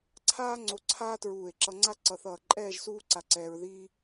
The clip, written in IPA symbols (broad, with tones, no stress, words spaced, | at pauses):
ǀʰaː˥ŋ͡ǀo˧ ǀʰaː˥tɹuː˧˩e̯ǁʌ˧ŋ͡ǀa˥ ǀʌ˧˩θʌː˧˩ǃʼɛː˥˧ʒ suː˥ǀa˧ǀɛː˧ɹðiː˥